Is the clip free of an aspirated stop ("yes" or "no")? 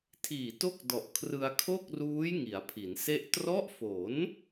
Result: no